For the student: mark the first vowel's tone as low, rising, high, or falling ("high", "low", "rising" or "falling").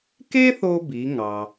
high